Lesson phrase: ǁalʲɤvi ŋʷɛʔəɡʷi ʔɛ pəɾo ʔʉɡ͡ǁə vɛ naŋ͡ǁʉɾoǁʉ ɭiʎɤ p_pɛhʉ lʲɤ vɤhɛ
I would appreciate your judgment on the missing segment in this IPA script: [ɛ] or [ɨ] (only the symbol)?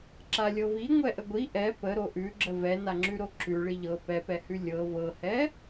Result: ɛ